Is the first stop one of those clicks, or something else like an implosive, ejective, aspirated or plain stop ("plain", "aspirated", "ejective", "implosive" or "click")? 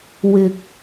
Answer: plain